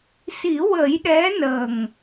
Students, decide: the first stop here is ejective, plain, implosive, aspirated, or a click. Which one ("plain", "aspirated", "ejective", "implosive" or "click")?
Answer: implosive